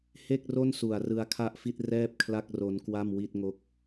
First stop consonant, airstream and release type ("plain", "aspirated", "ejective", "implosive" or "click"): plain